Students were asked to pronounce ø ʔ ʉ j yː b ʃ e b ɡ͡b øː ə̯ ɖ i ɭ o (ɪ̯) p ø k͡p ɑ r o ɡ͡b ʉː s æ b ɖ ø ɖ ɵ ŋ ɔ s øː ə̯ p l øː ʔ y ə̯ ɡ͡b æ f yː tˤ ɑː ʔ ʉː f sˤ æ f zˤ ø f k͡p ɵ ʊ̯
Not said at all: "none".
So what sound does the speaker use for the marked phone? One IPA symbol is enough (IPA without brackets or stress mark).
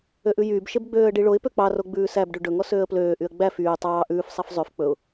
ɪ̯